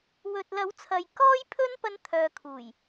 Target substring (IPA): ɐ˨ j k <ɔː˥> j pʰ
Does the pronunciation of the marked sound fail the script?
no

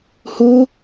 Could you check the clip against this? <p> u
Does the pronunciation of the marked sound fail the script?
yes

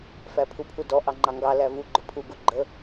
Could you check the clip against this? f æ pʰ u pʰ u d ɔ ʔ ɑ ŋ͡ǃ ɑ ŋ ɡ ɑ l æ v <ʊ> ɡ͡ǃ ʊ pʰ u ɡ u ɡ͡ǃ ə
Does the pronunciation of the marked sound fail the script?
yes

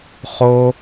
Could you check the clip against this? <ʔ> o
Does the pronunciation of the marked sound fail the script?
yes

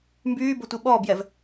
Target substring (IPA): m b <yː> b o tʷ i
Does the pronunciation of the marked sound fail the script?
no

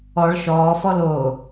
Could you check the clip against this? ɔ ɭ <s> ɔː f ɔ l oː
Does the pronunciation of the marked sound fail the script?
yes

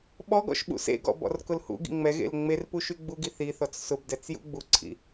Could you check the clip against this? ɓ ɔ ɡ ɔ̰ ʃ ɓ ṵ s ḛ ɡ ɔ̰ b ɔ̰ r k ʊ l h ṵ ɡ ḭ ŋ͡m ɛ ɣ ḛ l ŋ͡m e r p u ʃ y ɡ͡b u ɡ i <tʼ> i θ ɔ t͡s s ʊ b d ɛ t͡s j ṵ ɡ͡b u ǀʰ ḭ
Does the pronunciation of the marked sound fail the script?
yes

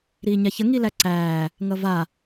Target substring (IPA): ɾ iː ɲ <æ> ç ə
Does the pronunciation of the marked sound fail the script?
yes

